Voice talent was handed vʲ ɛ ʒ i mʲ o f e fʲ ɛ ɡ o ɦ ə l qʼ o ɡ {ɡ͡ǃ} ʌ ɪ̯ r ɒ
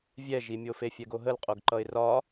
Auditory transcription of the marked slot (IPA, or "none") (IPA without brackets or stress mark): ǃ